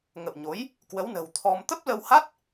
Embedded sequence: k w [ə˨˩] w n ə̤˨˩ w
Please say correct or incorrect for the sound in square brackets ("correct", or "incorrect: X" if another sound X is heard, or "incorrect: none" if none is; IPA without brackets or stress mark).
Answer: incorrect: ə˨˦